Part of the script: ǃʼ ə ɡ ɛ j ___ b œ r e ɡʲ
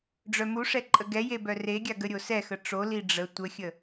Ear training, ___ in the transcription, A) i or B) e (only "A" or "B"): B